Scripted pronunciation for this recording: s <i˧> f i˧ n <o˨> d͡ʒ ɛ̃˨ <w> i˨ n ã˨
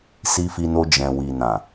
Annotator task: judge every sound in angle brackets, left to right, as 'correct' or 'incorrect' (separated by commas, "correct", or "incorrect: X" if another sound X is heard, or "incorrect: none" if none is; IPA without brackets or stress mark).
correct, incorrect: o˧, correct